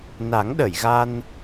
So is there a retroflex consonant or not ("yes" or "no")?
no